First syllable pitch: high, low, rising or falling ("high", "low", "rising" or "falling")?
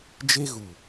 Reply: high